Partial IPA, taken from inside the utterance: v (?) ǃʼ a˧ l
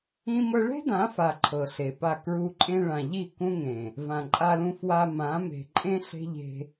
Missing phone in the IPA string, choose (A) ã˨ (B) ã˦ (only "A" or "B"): A